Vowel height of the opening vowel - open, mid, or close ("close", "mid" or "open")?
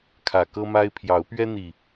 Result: open